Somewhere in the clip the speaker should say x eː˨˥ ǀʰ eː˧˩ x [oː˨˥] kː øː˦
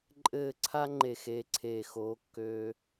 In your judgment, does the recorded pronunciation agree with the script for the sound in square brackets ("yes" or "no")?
yes